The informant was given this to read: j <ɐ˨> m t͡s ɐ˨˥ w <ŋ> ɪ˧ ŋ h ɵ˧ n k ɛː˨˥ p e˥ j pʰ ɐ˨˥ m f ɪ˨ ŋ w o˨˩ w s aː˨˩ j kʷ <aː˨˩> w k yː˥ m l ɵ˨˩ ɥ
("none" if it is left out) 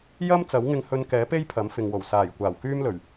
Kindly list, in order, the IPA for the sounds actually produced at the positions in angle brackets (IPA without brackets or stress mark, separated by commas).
ɐ˥, ŋ, aː˨˩